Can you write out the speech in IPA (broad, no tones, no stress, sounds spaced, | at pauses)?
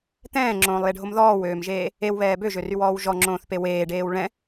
t̪ ɛ̃ː ŋ͡ǁ õː lˠ j e ɖʱ o m ð ɔː w øː m ʒ eː | e w β ɛː b ø ʒ ø r y w ɔː w ʒ ɔ ŋ͡ǁ õː θ p e w eː ɖ eː w ɭ ɛ̃